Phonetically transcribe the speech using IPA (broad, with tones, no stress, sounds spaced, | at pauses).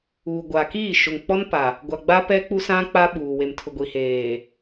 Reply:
uː˨ ɡʷ aː˨ k iː˦˨ ʃ ʊ˨ ŋ k͡p ɔ˦ n p a˨ | ɡʷ a˨ ɡ͡b a˦ p ɛ˦ k͡p u˦ s ã˦ k͡p a˦ ɓ uː˨ w e˨ m tʰ ʊ˨ ɡʷ i˨ h eː˨